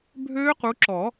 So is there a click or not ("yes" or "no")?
yes